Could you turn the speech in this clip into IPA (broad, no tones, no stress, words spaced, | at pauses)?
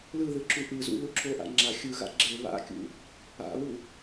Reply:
lɯðɯ ǁuʔɯzṵ luǁʰoʔa̰ ŋ͡ǁa xʲɯɣa̰ ɡ͡ǁe βa̰kʲṵ | a̰βu